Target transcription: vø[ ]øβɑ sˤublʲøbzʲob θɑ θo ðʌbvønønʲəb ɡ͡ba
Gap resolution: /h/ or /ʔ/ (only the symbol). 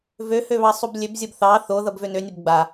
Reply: h